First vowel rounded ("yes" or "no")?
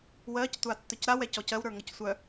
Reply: no